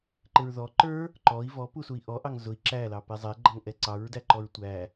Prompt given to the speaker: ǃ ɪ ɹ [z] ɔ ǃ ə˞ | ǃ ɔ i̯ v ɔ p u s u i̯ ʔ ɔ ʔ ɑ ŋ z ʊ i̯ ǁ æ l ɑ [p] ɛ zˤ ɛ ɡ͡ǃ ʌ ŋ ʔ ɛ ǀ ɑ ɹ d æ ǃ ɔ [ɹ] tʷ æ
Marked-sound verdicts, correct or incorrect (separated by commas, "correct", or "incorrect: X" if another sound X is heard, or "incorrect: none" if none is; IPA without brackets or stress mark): incorrect: ð, correct, correct